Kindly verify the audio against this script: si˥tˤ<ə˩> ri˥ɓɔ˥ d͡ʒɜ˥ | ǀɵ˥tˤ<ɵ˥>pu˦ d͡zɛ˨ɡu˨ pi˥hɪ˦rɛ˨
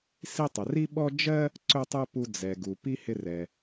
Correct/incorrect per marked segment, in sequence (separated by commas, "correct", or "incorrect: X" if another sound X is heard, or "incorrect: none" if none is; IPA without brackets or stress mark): correct, correct